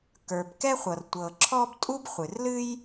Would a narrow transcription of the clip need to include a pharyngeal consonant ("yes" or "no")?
no